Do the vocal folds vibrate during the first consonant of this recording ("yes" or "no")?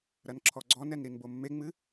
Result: yes